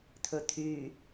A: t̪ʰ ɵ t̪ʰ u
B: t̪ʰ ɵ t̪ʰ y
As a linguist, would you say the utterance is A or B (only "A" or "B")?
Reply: B